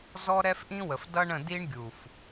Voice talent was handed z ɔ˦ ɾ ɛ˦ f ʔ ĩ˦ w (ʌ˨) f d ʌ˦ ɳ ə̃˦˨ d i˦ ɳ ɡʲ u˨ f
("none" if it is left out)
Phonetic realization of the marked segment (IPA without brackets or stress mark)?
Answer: ə˨